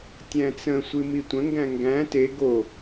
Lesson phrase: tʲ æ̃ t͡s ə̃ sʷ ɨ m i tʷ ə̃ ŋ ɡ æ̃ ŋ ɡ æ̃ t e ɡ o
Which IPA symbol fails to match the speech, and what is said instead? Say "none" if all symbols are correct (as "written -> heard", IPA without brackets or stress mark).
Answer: none